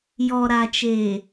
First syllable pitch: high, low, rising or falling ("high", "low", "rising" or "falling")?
low